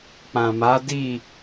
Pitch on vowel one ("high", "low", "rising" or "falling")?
low